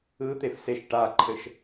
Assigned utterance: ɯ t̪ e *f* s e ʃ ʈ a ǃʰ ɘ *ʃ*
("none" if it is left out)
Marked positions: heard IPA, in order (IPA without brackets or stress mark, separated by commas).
f, ʃ